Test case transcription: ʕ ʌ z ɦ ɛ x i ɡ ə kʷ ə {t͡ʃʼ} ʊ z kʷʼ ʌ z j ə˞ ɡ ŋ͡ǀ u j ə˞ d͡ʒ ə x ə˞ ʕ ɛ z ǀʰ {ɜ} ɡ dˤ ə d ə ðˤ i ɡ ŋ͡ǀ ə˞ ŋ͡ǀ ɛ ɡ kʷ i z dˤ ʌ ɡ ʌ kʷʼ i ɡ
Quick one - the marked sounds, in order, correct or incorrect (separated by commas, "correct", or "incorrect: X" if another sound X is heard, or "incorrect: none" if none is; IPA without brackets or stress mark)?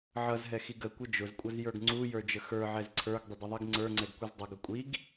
incorrect: d͡ʒ, incorrect: ə˞